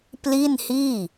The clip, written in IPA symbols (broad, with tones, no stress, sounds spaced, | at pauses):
p l i˥˩ n h iː˥˩